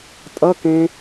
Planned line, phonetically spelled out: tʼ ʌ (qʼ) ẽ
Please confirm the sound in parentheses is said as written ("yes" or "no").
no